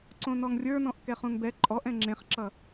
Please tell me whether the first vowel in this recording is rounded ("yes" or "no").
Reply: yes